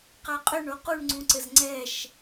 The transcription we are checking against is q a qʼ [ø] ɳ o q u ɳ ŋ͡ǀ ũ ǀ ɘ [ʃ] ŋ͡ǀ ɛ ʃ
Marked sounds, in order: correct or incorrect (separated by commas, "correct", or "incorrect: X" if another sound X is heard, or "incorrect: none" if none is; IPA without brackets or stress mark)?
correct, incorrect: z